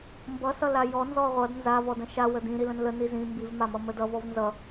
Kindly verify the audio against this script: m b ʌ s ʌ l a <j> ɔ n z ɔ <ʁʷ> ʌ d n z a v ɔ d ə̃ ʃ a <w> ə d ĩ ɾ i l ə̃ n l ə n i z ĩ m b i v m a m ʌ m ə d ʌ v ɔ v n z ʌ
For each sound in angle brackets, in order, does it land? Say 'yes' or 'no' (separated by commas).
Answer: yes, yes, yes